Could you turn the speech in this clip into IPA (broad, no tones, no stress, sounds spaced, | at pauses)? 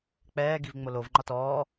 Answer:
k͡p ɛː ɡ i v ŋ͡m o l o v ŋ͡ǃ ɒ t ɔː